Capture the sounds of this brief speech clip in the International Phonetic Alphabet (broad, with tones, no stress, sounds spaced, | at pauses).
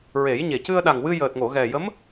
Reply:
ɹ e˨˩˦ j ɲ e˨˩ c ɨ˧ ə̯ ɗ a˨˩ ŋ w ɨ˧ j əː˨˩ t̚ ŋ o˨˩˨ ɣ ɛ˨˩ j ə˧˥ m